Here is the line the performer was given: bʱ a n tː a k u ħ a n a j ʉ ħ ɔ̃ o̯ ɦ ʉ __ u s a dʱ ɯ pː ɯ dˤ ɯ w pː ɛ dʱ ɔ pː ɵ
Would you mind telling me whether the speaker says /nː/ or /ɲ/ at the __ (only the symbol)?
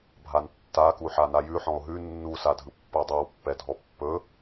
nː